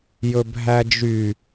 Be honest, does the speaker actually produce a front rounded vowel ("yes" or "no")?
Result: yes